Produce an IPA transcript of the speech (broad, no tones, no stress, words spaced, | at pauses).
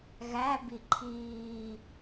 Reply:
ɣæbi ǃʰiː